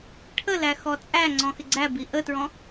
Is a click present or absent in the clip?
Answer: present